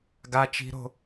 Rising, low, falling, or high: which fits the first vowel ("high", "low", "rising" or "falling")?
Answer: high